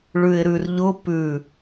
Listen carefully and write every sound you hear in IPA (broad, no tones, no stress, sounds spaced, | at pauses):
ɭ ʉ ɪ̯ ɾ ʉ r ʎ ʊ p ʉ